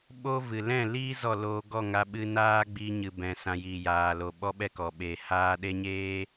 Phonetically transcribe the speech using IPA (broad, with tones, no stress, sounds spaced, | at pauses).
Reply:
ɓ o˦ v ɨ˨ l ɛ̃˦˨ l iː˦ z ɔ˦˨ l oː˧ ɡ ɔ˦˨ ŋ a˧ ɓ ɨ˧ n aː˦ ɡ͡b i˧ ɲ ɨ˨ b ɛ̃˨ s ã˨ j iː˨ j aː˨ l o˨ ɓ ɔ˦ ɓ ɛ˦ k ɔ˨ ɓ eː˨ h aː˧ ɗ e˦ ɲ eː˦